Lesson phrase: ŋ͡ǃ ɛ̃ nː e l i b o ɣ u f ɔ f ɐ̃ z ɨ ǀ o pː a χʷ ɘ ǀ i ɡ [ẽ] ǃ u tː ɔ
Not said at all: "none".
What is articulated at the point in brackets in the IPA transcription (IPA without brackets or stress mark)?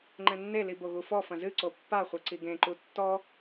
ẽ